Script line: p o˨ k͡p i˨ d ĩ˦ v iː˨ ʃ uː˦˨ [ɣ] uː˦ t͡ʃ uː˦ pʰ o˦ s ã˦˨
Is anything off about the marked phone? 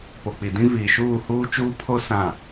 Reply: yes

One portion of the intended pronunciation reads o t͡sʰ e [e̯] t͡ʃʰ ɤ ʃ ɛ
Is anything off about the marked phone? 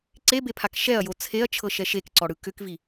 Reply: yes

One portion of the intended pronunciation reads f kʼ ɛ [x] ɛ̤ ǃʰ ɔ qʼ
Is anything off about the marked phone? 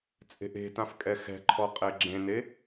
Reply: no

